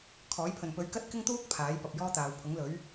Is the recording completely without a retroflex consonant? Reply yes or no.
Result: yes